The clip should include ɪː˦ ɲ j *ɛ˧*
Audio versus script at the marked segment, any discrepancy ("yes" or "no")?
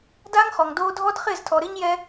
no